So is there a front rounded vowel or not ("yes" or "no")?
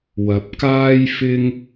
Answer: no